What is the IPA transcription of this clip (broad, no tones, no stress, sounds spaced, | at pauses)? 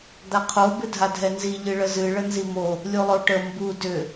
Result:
d̪ a qʰ o b ɨ dʱ a dʱ ɛ n z i ʎ ɨ ɭ ə z ɨ ɭ ə n z i m o | lʲ u lˠ o ʈ ə m b u d ʏ